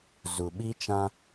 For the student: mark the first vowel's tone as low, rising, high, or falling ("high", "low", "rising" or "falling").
low